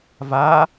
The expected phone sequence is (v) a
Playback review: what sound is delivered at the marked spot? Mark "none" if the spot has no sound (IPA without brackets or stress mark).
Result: v